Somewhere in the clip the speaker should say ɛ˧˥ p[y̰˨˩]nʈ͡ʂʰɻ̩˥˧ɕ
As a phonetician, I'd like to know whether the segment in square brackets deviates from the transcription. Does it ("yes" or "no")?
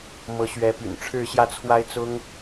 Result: no